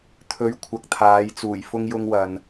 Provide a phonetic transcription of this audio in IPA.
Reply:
t̪ʰɵ˨˥ɥ kʷʰɐ˨k̚t̪ʰaː˨˧jt͡suː˨˩j fʊ˧ŋjʊ˧ŋwɐ˨n

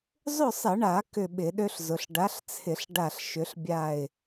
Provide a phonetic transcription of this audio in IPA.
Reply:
zˤʏ˥˨sˤɪ˧˩˧ɳa˧˩˧ kʏ˥˨ɓɪ˧˩˧ɗø˥ɬzʊ˩˧ɬ ɖa˨˥ɬt͡sʰɪ˧˩˧ɬ ɖa˥˨ɬ ʃʏ˨˥ɬbʲa˥˨ɪ̯

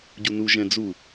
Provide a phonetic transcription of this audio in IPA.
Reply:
ɟunu ʒɛ̃d͡zu

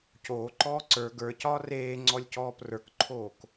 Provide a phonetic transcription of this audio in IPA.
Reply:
coːǃɔː ǀə˞ ɡə˞cɒː reːŋ͡ǀɔlʲcɔːp rə˞kǃʰoːk

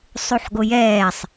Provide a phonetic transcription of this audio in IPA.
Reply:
sˤuħɡojɛːsˤ

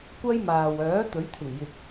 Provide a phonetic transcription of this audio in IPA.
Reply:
kʷɐ˥jmaː˨w œː˨˥t̪ɵ˨˥ɥt̪ʰɪ˨˩ŋjɪ˨k̚

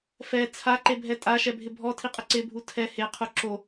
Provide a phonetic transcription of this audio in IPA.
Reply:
fɛ t͡sʰaǃebʱɛ tʼaʃɛbʱɪ bʱɔtʰiqʼɪ ǀɪbʱu tʰɛ heqʰu ǁo

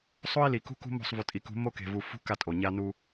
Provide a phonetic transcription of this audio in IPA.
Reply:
sˤo˦i̯li˨kṳ˦ kṳ˦mo̤˦˨sˤvu˨tʼi˨ kṳ˨˦ mo˦ke̤˨vu˨fṳ˦ ka˦tʼo˨ɲa˦nu˦

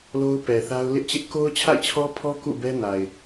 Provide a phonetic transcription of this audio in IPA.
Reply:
lo˦ʊ̯pɛ˨θa˦ʊ̯ lɪ˦ʔt͡ɕɪ˦ʔ ko˦ʊ̯t͡ɕʰa̰˦˨ɪ̯t͡ɕʰɔ˦pʰɔ˦ kṵ˦˨bɛ˦na˨ɪ̯

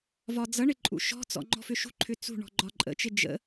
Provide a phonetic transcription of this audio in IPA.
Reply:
vɒd͡zʌɳɪ ǃʼṵʃɔ̤t͡sɔ̰ ŋ͡ǃɔ̤fʏʃṳǃʰʏ t͡sṳ ɳɔ̤ɡ͡ǃɒǃʼə̰t͡ʃɪ d͡ʒə̰

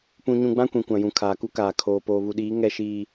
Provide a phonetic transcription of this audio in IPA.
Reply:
pũ˦ɲũ˦ ɡ͡bã˦kʷĩ˨ kʷã˨jũ˨ kʰaː˨ku˦kaː˨ kʰoː˨ poː˨βu˨ɗiː˨˦ ŋɛ˦ʃiː˦

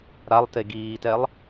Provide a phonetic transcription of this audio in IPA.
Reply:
ɾalˠte ɡiːtɛlˠ

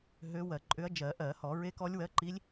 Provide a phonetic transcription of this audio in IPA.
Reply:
ɦø˧˥wɜ˧˩˧ǃʼʏ˧˥ɐ̯ d͡ʒɜ˧˩˧ʔɜ˧˩˧hɔ˧˩˧ ɹe˧˥kɔ˧˥lʲwɜ˧˥ǃi˧˥lʲ

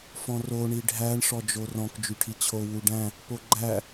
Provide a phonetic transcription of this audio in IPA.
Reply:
fɔ̃ro ɳiɖʱæɳ ʂɔd͡ʒorɔ̃k d͡ʒyʈʰit͡ɕʰo wuɖæ̃ | poɡ͡ǃæ

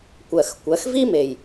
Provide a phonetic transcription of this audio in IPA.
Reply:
kʷɜ˩xkʷɜ˩˧xvi˥ me˩j

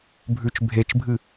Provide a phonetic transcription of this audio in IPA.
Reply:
bʱʉt͡ʃ bʱet͡ʃbʱɨ

